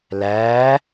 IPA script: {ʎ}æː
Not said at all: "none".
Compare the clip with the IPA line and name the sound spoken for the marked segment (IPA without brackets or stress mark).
l